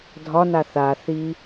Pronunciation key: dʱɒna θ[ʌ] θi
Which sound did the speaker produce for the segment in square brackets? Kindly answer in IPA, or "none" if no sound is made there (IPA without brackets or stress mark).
a